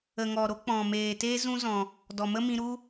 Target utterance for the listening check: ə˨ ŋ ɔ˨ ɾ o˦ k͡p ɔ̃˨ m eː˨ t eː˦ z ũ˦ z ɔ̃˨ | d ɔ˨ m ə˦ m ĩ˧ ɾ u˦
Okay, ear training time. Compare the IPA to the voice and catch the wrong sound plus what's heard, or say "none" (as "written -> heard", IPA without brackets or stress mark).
none